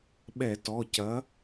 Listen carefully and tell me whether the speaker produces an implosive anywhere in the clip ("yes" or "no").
yes